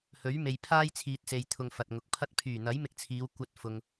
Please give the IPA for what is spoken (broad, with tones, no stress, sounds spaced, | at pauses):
h ɵ˨˥ ɥ m e˨ j pʰ aː˥ j t͡sʰ iː˨ t̚ s e˨ j t̪ʰ ʊ˨ ŋ f ɐ˨ t̚ ŋ ʊ˨ k̚ pʰ ɐ˧ t̚ pʰ yː˨˩ n̪ ɐ˨˥ j m ɪ˧ k̚ t͡sʰ iː˨˧ w kʷ ɐ˧ t̚ f ʊ˨ ŋ